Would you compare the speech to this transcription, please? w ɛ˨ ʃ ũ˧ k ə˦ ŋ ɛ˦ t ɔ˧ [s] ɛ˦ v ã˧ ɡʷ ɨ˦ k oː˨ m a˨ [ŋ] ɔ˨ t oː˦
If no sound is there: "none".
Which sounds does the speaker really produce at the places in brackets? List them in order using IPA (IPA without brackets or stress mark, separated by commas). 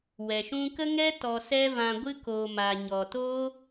s, ɲ